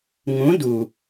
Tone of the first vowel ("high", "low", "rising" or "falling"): rising